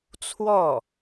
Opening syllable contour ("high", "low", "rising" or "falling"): falling